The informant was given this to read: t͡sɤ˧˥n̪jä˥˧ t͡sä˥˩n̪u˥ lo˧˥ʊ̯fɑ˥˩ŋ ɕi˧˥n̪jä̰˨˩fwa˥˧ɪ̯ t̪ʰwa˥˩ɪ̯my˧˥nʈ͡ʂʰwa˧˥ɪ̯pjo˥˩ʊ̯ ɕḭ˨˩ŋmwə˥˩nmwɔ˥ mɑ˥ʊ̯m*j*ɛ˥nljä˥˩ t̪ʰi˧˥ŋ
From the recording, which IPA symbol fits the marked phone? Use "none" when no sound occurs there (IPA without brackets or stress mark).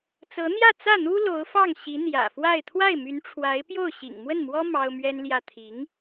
ɥ